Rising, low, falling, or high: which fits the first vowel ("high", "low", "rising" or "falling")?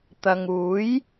low